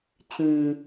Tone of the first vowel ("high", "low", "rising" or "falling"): low